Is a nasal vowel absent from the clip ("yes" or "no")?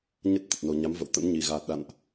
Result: yes